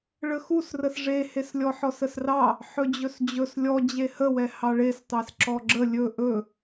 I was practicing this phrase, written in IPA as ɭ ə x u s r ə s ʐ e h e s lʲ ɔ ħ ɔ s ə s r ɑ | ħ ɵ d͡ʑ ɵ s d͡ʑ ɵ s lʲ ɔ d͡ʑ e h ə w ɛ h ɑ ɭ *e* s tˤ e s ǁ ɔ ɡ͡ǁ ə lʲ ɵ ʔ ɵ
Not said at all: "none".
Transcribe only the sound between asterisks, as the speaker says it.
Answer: e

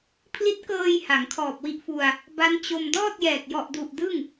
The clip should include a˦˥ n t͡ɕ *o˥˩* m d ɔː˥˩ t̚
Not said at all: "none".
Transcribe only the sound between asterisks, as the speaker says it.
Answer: o˧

